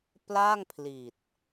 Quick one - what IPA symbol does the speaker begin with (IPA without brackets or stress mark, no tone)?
p